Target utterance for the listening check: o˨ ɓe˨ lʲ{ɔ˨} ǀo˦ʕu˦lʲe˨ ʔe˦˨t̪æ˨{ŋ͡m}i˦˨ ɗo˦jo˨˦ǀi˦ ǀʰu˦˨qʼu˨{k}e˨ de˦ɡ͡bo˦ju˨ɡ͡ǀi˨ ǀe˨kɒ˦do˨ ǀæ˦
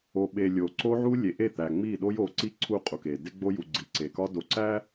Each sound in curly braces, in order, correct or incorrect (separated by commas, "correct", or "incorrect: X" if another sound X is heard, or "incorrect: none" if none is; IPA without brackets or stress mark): incorrect: o˨, correct, correct